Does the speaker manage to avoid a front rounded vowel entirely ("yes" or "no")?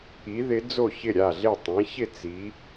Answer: yes